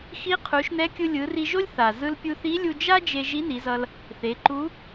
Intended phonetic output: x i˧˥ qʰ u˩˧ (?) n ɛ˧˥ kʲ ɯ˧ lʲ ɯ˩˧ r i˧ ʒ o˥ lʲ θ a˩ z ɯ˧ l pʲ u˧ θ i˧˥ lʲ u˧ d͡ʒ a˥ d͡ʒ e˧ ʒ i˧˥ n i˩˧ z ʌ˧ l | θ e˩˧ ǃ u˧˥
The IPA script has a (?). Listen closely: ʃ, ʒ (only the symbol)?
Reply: ʃ